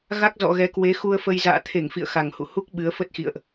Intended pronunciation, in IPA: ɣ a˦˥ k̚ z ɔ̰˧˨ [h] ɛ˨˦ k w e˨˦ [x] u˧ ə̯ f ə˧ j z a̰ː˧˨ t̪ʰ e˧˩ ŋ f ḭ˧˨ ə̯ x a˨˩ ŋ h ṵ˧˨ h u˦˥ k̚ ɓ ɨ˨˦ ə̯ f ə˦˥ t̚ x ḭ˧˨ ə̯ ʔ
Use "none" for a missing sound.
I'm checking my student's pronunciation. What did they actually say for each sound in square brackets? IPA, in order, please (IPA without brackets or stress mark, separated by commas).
ɣ, x